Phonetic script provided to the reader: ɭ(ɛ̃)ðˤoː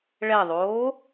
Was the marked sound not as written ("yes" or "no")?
yes